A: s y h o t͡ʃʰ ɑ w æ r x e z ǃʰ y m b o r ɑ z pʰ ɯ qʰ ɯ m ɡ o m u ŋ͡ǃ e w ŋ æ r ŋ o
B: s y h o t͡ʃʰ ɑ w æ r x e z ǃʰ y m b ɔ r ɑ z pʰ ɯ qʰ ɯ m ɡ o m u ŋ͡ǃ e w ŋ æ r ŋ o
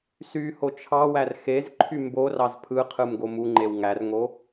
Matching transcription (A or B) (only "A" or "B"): A